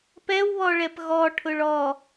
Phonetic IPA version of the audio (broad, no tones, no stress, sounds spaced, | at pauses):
p ɛ w β ɔ ɭ ɛ p ɣ ɔ ʈʰ ʊ ɭ ɔ